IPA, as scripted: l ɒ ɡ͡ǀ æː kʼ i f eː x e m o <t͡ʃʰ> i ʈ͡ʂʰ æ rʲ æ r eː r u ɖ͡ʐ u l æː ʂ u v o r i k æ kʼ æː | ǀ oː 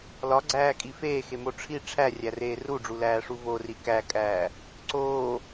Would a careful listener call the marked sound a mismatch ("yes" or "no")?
yes